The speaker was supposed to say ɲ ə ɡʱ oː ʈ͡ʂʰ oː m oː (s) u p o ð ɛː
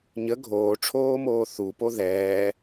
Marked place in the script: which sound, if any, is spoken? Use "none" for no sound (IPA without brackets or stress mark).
θ